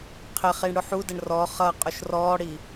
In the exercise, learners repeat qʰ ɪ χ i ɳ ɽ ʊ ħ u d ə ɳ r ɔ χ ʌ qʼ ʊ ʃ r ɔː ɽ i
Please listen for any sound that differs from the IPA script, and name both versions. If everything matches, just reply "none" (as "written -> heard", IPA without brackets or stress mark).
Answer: none